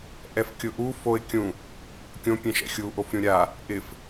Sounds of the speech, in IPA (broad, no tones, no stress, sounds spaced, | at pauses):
ʔ ɛ f kʲ ʊ ʔ u f o ɪ̯ kʲ ũ | kʲ õ pʲ ɛ̃ ʃ ɛ̰ xʲ u ʔ o f ɾʲ ũ ɾʲ a | ʔ ɪ f